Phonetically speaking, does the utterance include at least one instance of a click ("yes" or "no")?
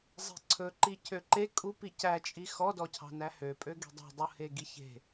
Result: yes